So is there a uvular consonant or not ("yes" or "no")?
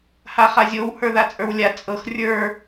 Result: yes